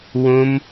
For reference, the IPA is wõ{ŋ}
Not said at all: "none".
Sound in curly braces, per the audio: m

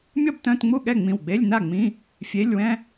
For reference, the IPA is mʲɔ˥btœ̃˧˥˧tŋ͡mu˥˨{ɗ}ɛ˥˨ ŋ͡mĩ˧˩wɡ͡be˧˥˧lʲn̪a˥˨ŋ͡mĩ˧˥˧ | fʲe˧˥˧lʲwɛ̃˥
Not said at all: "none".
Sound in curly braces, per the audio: ɠ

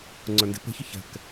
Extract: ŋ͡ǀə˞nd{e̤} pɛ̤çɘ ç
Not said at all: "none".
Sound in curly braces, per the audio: e̤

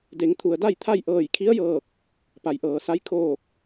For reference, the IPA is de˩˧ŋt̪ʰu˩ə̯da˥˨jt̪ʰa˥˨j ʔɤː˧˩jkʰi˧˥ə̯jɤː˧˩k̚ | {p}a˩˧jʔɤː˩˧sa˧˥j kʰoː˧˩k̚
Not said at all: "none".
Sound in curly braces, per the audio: p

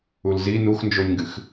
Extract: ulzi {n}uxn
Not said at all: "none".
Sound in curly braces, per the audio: n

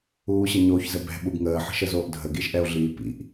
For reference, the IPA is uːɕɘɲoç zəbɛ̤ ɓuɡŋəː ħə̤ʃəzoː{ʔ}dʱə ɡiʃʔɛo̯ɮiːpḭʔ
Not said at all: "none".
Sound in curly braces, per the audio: ʔ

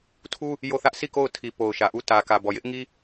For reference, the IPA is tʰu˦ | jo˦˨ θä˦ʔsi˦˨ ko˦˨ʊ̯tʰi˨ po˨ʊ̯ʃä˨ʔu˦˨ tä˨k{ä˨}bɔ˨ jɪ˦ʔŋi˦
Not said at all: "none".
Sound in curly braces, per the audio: ä˨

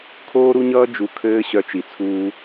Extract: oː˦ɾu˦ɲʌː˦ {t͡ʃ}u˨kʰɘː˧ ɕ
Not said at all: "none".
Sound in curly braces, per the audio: d͡ʒ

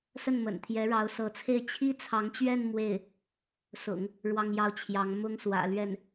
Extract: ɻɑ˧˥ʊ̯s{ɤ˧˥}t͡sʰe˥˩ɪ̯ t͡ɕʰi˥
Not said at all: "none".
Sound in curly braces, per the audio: ɤ˧˥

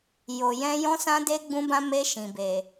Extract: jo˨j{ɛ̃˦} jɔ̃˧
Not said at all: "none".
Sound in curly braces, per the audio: ɛ̃˧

